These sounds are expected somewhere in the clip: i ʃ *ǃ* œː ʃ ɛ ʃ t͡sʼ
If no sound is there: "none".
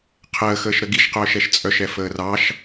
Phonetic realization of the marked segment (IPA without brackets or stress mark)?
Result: q